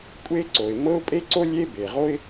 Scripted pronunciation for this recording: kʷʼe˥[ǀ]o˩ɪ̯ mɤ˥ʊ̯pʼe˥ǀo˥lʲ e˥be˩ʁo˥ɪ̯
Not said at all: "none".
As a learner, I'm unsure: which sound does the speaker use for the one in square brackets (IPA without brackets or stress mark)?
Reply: ǀ